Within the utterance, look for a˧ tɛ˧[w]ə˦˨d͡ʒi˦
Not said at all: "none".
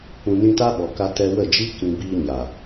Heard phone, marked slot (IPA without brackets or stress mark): w